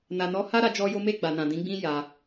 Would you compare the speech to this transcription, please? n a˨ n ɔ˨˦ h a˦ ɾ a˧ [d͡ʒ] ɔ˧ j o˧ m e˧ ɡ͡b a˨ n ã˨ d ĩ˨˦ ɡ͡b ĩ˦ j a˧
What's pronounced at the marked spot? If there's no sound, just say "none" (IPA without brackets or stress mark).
d͡ʒ